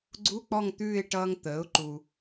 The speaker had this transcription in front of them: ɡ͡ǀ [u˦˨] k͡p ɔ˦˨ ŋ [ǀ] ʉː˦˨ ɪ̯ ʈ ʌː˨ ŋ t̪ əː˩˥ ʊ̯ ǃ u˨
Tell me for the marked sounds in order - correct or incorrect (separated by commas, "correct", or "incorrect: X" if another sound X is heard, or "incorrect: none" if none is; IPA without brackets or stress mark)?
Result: incorrect: u˧˥˧, incorrect: t̪